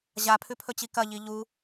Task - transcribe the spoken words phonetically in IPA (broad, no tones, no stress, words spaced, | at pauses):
ʑapʰʉpʰɵt͡ɕi kɐʎi ʎu